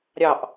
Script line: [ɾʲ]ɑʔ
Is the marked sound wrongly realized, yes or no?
no